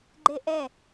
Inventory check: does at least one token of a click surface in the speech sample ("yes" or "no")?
yes